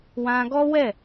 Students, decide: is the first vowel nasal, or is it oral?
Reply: nasal